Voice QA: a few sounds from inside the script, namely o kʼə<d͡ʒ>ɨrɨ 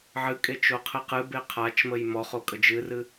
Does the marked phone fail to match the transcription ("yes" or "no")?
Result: no